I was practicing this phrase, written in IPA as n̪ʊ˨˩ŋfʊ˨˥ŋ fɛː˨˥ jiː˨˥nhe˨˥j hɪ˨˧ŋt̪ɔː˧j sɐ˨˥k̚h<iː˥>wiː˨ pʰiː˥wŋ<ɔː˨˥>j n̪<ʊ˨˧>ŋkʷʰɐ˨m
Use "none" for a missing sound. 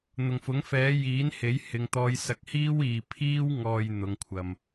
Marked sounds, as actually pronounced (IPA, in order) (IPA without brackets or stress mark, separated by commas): iː˥, ɔː˨, ʊ˨˧